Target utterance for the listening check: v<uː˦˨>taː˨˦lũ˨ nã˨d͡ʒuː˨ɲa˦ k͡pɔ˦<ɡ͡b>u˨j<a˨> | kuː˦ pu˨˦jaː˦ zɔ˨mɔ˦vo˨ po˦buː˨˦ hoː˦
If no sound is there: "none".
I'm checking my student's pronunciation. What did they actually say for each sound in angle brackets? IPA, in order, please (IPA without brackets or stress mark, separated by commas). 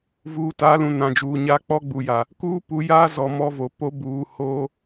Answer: uː˨, ɡ͡b, a˨